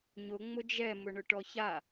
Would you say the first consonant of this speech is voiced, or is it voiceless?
voiced